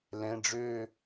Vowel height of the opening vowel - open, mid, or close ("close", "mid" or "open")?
mid